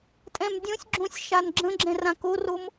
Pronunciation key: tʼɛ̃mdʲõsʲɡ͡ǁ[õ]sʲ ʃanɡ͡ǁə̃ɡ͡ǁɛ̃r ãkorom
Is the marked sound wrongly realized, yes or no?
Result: no